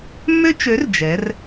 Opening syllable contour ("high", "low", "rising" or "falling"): high